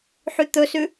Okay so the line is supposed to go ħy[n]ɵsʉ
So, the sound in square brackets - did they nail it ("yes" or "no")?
no